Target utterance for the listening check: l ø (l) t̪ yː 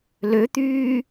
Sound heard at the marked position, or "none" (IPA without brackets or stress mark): none